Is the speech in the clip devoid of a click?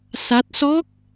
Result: yes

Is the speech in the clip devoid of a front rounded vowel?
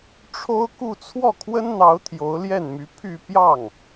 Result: no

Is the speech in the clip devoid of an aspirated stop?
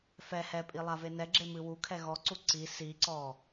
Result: no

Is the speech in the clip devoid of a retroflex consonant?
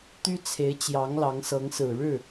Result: no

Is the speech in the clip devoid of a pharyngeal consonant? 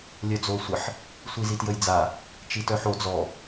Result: no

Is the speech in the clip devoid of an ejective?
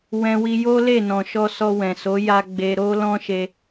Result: yes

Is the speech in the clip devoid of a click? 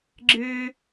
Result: no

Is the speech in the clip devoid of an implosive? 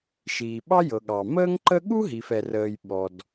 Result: no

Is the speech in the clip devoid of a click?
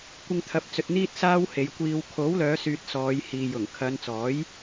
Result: yes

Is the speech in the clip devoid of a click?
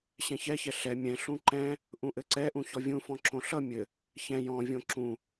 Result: no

